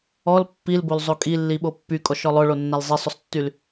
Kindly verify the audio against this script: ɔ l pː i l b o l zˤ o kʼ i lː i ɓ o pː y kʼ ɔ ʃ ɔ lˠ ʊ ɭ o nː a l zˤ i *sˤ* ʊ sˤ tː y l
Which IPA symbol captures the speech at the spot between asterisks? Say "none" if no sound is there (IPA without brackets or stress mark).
sˤ